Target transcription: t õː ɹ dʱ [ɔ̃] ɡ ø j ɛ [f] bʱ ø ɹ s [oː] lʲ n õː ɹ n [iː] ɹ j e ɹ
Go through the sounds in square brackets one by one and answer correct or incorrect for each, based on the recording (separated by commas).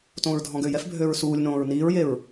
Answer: correct, correct, incorrect, correct